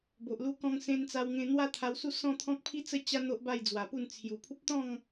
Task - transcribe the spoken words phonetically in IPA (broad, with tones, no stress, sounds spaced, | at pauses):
b o˨ ʔ l u˧ k ɔ̃˧ ŋ s ẽ˧ n t͡s a˧ w ŋ ẽ˧ n̪ w a˦ t̪ʰ a˧ w s u˦ s ɔ̃˥˧ t̪ʰ ɔ̃˦ k̚ pʰ i˦ t͡s ə˦ t͡ɕ a˦ n̪ o˦ ʔ b a˥˧ j d͡z w a˨˩ p u˥˧ n t͡sʰ j u˨˩ pʰ u˦ p̚ t̪ ɔ̃˥˧ ŋ